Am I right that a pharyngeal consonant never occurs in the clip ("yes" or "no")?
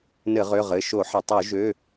no